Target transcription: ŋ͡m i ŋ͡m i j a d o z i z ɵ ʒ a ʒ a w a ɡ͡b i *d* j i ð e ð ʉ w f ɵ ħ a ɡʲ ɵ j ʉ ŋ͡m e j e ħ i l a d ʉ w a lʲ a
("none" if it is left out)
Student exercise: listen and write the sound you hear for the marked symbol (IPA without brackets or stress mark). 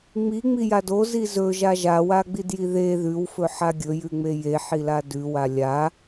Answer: d